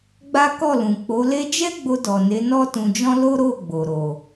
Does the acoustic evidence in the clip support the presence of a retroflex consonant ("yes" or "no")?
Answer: no